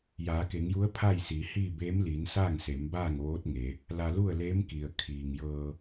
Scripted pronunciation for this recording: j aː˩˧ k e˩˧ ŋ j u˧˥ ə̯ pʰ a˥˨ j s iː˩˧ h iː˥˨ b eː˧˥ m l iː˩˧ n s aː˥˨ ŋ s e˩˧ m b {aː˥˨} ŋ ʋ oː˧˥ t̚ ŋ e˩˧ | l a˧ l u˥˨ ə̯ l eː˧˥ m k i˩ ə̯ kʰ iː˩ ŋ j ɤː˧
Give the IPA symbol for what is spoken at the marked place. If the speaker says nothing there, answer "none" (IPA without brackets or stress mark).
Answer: aː˥˨